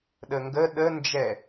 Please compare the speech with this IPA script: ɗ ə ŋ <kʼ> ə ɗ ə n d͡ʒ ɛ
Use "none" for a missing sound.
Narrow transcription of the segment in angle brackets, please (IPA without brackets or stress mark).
ɡ